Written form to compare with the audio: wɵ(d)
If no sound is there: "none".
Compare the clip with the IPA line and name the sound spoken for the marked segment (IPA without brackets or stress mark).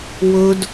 d